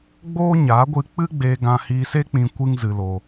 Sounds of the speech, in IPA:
ɡ͡b oː˦ ɲ a˨˦ ɡʷ ɨ˧ k͡p ɨ˦ ɡ͡b eː˧ ɡ ã˧ h iː˧ s e˦ k͡p ĩ˧ kʷ ɨ˦ ŋ z ɨ˧ l oː˧

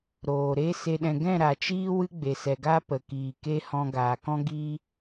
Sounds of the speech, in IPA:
ɾ oː˨ ɾ e˦ s e˧ ɗ ɛ̃˧ ɡ ɛ̃˦˨ ɾ a˨ t͡ʃ iː˦ w ɨ˦ ɡ͡b e˨ s ɛ˨ ɡ a˦ p ə˨ k iː˨ k e˦ h ɔ̃˧ ɡ aː˨ k ɔ̃˦ ɡ i˦

